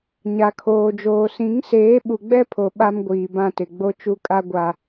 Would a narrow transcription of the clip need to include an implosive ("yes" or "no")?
yes